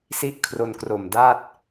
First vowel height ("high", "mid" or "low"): high